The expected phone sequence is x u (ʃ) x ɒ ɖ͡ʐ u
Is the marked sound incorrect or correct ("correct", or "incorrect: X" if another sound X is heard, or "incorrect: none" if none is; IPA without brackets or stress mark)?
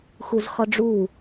incorrect: z